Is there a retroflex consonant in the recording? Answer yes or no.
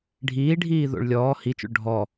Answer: yes